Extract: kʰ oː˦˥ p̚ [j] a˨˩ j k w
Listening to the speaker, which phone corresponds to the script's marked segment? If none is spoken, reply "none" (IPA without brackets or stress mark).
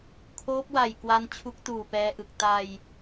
w